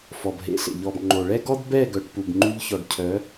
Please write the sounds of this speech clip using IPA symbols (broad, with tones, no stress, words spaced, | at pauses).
fɔ˨bɦḛ˨˦ɬḛ˨ ʎɔ˨bŋ͡ǃo˨ɭɛ˦ɡɔ˦d bɛ˦˨ɡœ˨ʈpu˨b ŋ͡ǃy˧ʎçɔ˨ɖcʰœ˨˦